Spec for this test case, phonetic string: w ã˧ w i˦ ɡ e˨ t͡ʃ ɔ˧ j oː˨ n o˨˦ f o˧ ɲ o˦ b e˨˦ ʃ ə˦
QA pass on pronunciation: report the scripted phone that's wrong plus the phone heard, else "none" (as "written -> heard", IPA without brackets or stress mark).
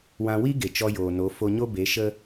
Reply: none